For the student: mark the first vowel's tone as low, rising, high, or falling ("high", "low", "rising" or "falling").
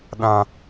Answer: high